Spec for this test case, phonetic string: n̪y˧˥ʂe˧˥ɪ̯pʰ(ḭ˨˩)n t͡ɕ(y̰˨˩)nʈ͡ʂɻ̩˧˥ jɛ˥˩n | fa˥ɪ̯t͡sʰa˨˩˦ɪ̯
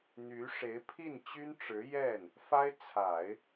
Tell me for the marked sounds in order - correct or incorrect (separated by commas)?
incorrect, incorrect